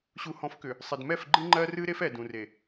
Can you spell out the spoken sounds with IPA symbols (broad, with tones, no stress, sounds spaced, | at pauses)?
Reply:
ɕ u˨ h ɔ̃˨˦ f k ʏ˨ | sˤ ɪ˨ d m ɛ˦˨ f ɡ͡ǃ ɨ˦ ŋ͡ǃ ɜ˦ r ɨ˦ ɾ e˦ f ɛ˨ d ũ˨ r e˨